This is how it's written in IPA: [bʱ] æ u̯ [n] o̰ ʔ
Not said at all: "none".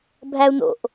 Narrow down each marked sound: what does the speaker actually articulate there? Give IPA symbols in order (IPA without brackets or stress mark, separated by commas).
bʱ, n